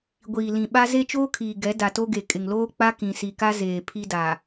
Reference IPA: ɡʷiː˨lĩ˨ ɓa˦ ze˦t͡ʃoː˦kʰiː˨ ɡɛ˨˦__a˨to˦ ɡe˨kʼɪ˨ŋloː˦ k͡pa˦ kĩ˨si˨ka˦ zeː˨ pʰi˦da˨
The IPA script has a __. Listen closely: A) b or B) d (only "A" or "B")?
B